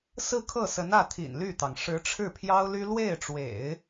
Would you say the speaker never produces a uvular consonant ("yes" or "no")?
yes